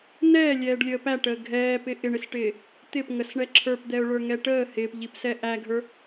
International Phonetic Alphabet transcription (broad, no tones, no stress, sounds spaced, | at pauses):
n ɛː lʲ ɛː ɖ lʲ əː p æ ʈ əː ɡʱ ɛː p ɪ ʔ ɪ ɳ ɪ s ʈ ɪː | t̪ ɪ p ŋ ə s ɳ ɛ ǁʰ ə˞ p d̪ ɛ ʊ̯ ɭ ə˞ ŋ ɛ ʈ əː h ɪː p ʎ i p s ɛ ʔ æ ɡʱ ə˞